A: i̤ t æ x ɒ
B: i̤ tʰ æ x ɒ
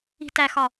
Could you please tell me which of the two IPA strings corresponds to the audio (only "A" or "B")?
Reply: A